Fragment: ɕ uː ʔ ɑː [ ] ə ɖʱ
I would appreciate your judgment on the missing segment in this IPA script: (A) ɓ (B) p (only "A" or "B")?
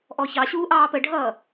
B